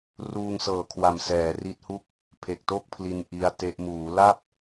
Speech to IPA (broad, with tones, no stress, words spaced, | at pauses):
ruː˧ŋsɤː˨˩kʰwa˨˩m sɛː˩˦ri˦˥t̚hu˥˩k̚ | pʰe˨˩k̚to˥˩k̚pʰli˧n ʔi˦˥a̯te˦˥ʔ muː˩˦la˥˩p̚